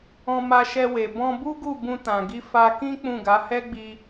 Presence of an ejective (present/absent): absent